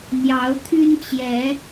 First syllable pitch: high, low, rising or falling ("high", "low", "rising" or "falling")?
rising